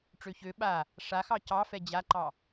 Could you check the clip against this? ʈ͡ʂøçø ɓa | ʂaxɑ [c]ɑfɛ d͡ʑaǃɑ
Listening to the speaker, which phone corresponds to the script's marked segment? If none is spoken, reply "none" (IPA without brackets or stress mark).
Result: c